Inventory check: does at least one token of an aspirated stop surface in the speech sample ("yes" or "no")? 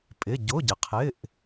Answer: yes